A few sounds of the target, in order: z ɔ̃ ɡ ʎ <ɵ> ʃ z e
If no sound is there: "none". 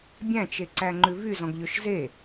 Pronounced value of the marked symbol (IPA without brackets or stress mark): ɵ